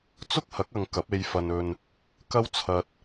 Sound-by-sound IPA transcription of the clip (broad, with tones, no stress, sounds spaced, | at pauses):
t͡s ʊ˥ k̚ h ɐ˨˥ k̚ ɐ˨ ŋ k ɐ˨˥ p̚ e˧ j f ɐ˧ n ɵ˧ n | k ɐ˥ w t͡sʰ ɐ˧ t̚